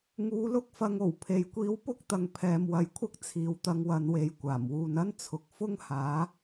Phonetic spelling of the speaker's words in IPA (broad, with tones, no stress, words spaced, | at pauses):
ŋuː˨˧lʊ˥k̚fɐ˨˧ŋo˨˩w pʰe˨jkʷiː˧wpʊ˥k̚t̪ɐ˨ŋ pʰɛː˨mwɐ˨jkʷʰɐ˥k̚ t͡sʰiː˨wt̪ɐ˧ŋwɐ˨˧nwe˨˧j kʷaː˨˩mwuː˨n ɐ˥nt͡sʰʊ˨k̚ fʊ˥ŋhaː˨˥